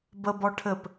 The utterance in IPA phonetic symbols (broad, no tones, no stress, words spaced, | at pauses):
bəbɔ ʈʰɘp